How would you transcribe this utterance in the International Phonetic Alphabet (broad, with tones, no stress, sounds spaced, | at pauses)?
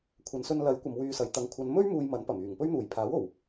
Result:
kʷʰ ɐ˨ n s ɵ˧ n l ɐ˨˥ j kʷ ɐ˧ m w yː˧ s ɐ˨˧ j t̪ ɐ˨ ŋ kʷʰ ɐ˨˧ n m ɵ˥ ɥ m uː˧ j m ɐ˨˥ n p ɐ˨˩ m yː˨˩ ŋ p ɵ˥ ɥ n̪ uː˨˩ j pʰ aː˨˥ w o˨˩ w